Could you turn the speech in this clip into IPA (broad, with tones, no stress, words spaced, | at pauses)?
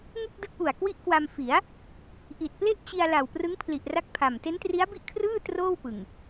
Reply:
ŋu˥˩k̚dɯ˦˥k̚ʔu˨˩a̯ kwi˦˥ʔkwa˧mfi˩˦a̯ | ʔi˨˩t̚ple˥˩ʔ t͡ɕi˧a̯ la˨˩wprɯ˦˥ŋ pʰli˨˩ʔra˦˥k̚pʰa˨˩m te˦˥ntri˦˥a̯bi˥˩ʔkʰrɯː˥˩ troː˥˩wpɯ˨˩ŋ